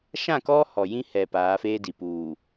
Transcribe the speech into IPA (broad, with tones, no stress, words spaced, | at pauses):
ʃã˦˨kɔ˦ hɔ˨ jĩ˦hɛ˨ paː˨˦feː˦di˨ puː˨